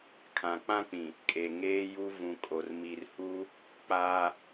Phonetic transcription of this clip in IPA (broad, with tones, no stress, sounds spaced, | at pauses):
kʰ ã˨ k͡p ã˦ k͡p ĩ˨ | kʼ e˨ ŋ eː˦ j u˦ v ũ˨ kʼ o˨ r m i˨ r h uː˦ | k͡p aː˦